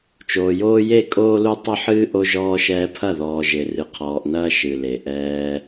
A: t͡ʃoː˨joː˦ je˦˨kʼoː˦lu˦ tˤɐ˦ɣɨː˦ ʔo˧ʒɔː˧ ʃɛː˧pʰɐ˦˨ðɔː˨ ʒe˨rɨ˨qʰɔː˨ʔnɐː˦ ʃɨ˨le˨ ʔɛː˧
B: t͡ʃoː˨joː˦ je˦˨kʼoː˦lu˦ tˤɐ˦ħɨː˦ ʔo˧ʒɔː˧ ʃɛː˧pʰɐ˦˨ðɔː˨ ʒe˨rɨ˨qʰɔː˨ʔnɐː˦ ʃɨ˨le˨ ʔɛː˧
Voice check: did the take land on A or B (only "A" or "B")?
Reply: B